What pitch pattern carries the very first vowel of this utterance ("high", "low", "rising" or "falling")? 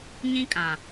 high